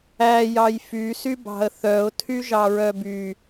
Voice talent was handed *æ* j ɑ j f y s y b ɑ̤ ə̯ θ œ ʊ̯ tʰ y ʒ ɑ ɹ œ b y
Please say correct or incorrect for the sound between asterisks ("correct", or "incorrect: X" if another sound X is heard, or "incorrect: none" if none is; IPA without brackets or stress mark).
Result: correct